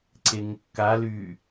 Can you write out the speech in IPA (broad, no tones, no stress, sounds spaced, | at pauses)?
ǀ e ŋ kː a l y